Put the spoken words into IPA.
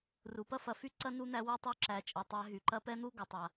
ru˩pɐ˥fɐ˨fy˥ ǀɐ˥nu˦n̪æ˦ wu˦tˤu˦ ǁæ˨t͡ʃʼɐ˨tˤæ˦ ɦy˩ǃɐ˦pɛ˥n̪u˥ ɡɐ˨tˤa˩

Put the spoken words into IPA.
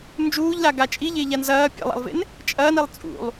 nd͡ʒuːʎlaɡa t͡ʃʼiʎeʎan zɐː pʲḛlˠa̰lˠvḛn | t͡ʃʼɐːnilˠ t͡sʼṵlˠ

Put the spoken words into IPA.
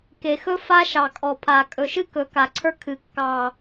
ke˨˩xɵ˥ fa˥ʃɑ˨˩kʼɔ˨˩pʰa˨˩ kʼɵ˨˩ʃɨ˥kɵ˩˧ ka˨˩ǀʰə˞˥ kʰɨ˩˧kːɑ˨˩

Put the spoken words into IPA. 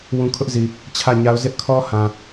wũ˦ kʰʊ˦ʔzi˨ | t͡ɕʰä˦˨ ɲa˦ʊ̯ zɪ˦ʔkʰɔ˦ hã˨

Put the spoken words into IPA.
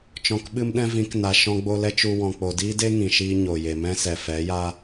t͡ʃɔ̃˨kɓɨ˦mɗɛ̃˦ vĩ˨˦kna˨ ʃɔ̃˧ɡ͡bo˧lɛ˦ t͡ʃu˧ wɔ̃˨k͡po˨diː˦de˦ ŋĩ˨ʃiː˦ ɲo˨je˨ mɛ̃˦sɛ˨ fɛ˨˦ja˦

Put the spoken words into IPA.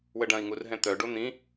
wəɖɐ̃i̯ŋur ɦɛ̃t̪œɖo n̪ĩ

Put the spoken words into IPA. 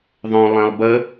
ðˤœ̃ lˠɛ̃lˠbə

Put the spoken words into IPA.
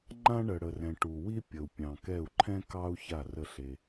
ŋ͡ǃã˦ɳə˩ɽə˩rɛ̃˩ ʈu˩ wi˦ pʲə˩u̯pʲɑ̃˩kɛ˧˩u̯ǃʰɛ̃˦ kɑ˦u̯ ça˧˩rə˧˩ ɬe˩

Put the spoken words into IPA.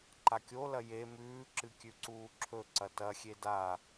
ǃakʲolɐ je mʉːǁɨ kʲʉǀuːǁʰɵǀɐ tɐxʲe da

